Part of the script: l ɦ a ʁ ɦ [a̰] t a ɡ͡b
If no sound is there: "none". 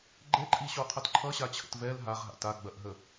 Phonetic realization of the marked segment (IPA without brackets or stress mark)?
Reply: a̰